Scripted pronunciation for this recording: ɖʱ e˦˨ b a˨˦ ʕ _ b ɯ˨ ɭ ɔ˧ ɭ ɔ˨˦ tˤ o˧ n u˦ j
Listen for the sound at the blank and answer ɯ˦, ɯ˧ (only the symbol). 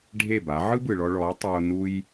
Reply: ɯ˦